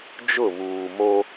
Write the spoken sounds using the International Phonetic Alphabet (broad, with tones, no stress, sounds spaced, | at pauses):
d͡ʒ ʊ˦˨ β uː˨ m o˦